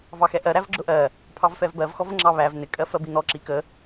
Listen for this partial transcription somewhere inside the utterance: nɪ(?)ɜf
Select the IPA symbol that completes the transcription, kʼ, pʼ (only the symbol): kʼ